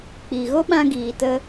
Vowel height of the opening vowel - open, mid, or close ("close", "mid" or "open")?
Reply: close